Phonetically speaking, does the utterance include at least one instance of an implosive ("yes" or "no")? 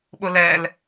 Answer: yes